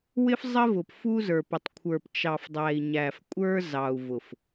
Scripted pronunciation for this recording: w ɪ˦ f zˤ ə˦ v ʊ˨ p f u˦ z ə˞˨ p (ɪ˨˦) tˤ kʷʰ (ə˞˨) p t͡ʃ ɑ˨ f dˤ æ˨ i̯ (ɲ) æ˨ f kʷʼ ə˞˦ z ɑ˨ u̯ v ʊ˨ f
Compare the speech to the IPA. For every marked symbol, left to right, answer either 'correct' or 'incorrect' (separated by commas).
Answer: incorrect, correct, correct